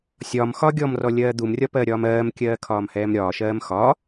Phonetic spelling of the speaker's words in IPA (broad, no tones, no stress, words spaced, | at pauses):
sʲɒmxɒ ɡʲɔmrɔlʲɜː d̪umrʲɒpɜɾʲɒːm ɜːmkʲɜːkʰɒːmhɛːm ɾʲɒːʃɜːm xɒ